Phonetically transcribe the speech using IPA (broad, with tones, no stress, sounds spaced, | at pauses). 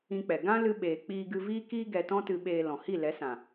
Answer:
ĩ˧ k͡p ɛ˨ ɡ ã˦ l ɨ˧ ɓ eː˨ k͡p iː˧ ɡ ɨ˧ v iː˦ k iː˦ ɡ ɛ˧ t ɔ̃˦ t ɨ˧ ɓ eː˧ l ɔ̃˨ h i˦˨ l ɛ˨˦ s ã˨